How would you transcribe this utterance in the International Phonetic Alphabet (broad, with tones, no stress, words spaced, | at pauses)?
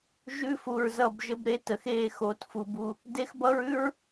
ʒʉ˦fu˨ɹzʌ˦˨b ʒə˦bɾe˦tə˨x e˦˨ xo˨tfu˨b u˨ | de˦xbʌ˦ɹʉ˦ɹ